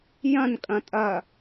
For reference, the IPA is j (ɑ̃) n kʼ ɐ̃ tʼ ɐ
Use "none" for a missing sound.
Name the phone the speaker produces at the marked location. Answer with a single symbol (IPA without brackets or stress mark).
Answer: ɐ̃